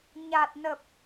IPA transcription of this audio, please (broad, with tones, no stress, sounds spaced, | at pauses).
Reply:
ɲ a˨˩ t̚ n ə˨˩ p̚